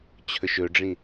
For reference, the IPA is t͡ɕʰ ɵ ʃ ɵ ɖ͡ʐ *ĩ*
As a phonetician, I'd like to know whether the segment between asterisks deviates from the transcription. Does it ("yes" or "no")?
no